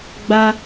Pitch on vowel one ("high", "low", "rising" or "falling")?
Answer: high